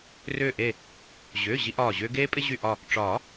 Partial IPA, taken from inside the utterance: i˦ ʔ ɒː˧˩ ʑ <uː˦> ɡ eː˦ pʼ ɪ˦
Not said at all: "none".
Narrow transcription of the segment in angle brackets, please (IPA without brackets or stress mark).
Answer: ʏː˦